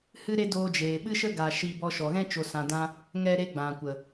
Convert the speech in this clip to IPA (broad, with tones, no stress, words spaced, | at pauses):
hɨ˦ɾe˦ doː˧d͡ʒeː˨ ɓɨ˦ʃə˦ ɡa˧ ʃiː˧bɔ˧ʃɔ˨ɣɛ̃˦ t͡ʃo˨sã˨dã˧ | ŋɛ˧ɾe˧ ɡ͡bã˨kʷə˨